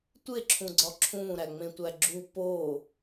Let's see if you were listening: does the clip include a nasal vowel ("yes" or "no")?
yes